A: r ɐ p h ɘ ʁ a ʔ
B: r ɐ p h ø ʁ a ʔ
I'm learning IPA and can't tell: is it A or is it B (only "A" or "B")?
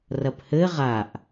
A